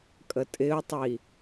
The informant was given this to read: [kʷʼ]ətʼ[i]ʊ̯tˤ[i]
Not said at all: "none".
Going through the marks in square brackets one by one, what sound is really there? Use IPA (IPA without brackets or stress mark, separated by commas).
kʼ, ɪ, i